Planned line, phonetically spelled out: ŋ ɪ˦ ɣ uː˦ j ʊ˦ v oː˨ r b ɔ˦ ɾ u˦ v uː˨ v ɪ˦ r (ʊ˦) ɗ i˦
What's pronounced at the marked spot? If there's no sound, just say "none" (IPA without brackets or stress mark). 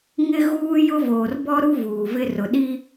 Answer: ʊ˨